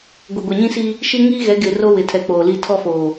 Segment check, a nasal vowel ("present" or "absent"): present